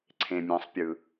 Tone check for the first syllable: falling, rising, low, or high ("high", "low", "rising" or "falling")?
low